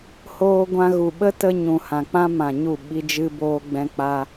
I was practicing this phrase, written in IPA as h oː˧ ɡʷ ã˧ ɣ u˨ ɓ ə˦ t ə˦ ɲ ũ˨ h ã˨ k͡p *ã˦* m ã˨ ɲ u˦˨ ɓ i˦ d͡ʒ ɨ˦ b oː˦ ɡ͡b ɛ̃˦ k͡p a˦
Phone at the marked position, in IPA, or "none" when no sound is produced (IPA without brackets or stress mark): ã˦